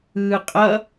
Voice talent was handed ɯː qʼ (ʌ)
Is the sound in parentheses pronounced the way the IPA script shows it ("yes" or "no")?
yes